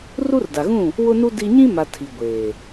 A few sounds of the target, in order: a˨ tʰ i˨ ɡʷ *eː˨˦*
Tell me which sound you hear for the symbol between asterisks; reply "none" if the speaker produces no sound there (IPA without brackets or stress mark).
eː˨